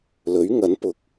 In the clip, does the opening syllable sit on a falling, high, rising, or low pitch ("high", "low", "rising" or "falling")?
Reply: rising